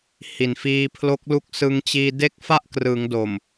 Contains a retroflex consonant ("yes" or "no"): no